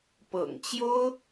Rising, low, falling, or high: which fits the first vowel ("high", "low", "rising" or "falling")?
low